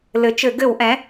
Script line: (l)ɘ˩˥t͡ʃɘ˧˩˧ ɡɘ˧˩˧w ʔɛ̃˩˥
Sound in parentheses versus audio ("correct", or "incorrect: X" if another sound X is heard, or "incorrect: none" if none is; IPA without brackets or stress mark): correct